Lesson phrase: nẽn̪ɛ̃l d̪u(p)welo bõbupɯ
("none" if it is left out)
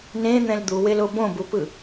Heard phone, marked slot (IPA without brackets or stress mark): none